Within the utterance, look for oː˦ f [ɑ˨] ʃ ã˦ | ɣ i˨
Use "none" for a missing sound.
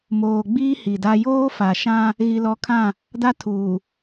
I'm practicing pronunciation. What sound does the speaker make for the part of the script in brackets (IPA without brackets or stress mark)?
a˨